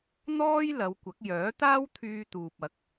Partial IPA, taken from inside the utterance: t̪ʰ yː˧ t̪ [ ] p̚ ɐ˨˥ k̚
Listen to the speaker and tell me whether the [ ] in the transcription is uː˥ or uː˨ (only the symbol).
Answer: uː˨